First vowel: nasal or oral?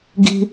oral